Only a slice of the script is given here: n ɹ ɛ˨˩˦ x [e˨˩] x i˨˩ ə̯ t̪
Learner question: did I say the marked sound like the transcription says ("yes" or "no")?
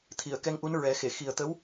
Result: no